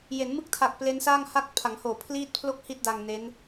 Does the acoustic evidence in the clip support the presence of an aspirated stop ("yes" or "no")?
yes